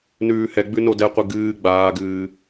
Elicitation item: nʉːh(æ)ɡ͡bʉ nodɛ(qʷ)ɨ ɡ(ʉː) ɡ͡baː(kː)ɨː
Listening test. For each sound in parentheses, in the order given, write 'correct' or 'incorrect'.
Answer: incorrect, correct, incorrect, incorrect

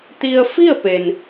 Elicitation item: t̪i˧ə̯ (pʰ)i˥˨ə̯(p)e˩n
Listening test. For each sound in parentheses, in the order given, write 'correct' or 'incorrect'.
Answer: incorrect, correct

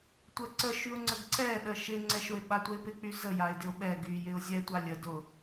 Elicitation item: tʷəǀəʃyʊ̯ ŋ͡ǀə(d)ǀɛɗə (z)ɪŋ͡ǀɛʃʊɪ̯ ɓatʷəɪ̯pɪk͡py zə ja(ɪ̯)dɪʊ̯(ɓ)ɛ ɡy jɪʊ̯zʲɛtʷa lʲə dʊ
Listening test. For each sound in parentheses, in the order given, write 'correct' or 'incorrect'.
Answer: incorrect, incorrect, correct, correct

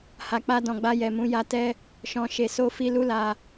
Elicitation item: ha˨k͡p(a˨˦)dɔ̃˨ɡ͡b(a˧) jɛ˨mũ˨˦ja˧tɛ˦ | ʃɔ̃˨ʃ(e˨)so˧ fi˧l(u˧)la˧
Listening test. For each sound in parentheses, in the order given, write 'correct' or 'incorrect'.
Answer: incorrect, correct, correct, incorrect

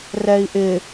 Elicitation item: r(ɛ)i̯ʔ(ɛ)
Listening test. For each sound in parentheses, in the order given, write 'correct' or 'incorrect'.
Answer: correct, incorrect

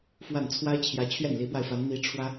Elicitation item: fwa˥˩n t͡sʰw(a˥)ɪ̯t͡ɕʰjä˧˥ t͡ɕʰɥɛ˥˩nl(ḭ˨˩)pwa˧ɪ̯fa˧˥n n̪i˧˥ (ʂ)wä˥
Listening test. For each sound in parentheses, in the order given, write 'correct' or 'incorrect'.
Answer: correct, incorrect, incorrect

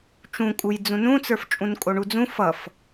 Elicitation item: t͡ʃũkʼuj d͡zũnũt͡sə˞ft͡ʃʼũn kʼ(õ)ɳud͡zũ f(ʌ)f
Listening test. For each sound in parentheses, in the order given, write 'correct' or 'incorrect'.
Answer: incorrect, correct

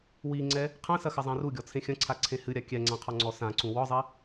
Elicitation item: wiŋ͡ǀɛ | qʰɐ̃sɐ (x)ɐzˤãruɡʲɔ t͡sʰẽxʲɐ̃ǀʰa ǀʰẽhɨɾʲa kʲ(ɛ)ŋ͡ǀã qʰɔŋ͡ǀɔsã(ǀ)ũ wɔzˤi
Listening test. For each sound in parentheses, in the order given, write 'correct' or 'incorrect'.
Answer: correct, correct, correct

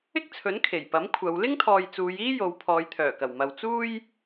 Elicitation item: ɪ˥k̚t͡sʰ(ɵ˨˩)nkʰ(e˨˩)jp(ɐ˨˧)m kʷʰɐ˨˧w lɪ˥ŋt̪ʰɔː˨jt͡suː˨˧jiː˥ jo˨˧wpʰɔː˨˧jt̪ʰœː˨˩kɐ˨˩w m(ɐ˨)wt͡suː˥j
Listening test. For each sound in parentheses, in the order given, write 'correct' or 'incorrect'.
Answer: incorrect, correct, incorrect, correct

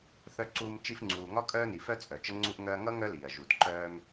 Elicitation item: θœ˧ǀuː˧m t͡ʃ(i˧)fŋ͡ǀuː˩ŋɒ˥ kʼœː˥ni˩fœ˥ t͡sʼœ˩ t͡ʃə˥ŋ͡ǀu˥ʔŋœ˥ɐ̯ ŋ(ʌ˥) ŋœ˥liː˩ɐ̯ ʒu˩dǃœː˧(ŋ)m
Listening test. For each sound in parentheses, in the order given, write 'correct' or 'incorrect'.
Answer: correct, correct, incorrect

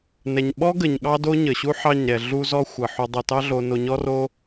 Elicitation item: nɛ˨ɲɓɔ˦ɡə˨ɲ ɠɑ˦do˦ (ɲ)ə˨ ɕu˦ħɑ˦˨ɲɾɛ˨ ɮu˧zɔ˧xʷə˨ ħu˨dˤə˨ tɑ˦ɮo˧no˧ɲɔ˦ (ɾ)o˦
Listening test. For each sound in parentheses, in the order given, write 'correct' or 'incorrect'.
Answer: correct, incorrect

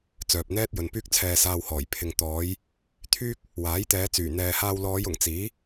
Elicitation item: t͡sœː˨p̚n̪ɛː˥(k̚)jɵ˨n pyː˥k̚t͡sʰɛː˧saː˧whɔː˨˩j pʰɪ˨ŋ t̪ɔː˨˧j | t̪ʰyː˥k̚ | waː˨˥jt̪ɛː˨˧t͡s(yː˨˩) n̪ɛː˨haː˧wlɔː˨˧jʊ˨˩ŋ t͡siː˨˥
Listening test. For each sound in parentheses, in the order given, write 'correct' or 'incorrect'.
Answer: incorrect, correct

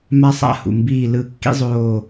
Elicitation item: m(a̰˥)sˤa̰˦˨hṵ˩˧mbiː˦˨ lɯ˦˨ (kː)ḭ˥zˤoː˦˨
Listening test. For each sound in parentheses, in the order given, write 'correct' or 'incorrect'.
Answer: incorrect, correct

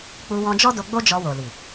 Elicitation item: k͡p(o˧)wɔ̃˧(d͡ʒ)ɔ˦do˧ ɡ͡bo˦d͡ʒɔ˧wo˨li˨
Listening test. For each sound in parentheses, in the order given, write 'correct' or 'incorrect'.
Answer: incorrect, correct

